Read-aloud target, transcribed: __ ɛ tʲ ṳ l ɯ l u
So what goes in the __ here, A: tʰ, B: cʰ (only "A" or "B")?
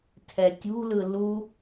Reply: A